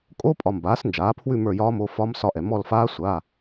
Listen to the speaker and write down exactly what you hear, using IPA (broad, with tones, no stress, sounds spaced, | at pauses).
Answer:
kʼ o˧˥˧ pʼ ɒ˨ m b aː˩˥ s n d͡ʒ aː˩˥ pʰ w ʉ˦˨ m ə˞˦˨ j ɒː˦˥ m o˧˥˧ f ɒ˦˥ m s ɒ˦˨ ʔ ɛ˨ m ɔ˦˨ l f aː˦˥ sʷ a˧˥˧